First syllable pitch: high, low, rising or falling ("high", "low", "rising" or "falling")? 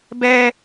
high